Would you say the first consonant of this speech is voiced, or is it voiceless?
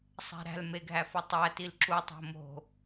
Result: voiceless